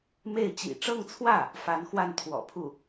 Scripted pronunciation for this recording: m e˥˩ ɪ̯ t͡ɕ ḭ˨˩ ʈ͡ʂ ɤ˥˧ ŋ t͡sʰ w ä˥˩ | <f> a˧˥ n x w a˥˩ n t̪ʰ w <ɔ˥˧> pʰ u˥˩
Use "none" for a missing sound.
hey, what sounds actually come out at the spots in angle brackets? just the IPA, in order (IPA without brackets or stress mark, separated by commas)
f, ɔ̰˨˩